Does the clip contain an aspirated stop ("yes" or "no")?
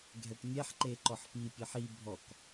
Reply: no